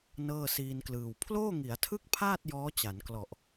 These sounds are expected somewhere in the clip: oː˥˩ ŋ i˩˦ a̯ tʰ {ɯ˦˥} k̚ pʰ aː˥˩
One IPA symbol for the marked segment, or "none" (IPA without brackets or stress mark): ɯ˥˩